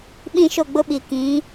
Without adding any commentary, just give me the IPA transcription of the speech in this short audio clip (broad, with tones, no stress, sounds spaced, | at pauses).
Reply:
ɓ ĩ˦˨ ʃ o˦˨ ɡ͡b ʊ˦ ɓ i˨ k ĩ˨˦